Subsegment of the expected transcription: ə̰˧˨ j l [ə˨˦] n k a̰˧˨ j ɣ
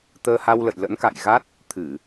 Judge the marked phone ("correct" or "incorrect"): incorrect